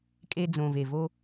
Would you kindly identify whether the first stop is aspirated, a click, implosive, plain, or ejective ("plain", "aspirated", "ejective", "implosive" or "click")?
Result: ejective